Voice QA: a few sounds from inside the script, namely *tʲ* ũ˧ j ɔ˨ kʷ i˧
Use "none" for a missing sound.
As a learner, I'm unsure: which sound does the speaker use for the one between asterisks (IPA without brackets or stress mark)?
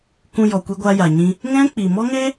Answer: k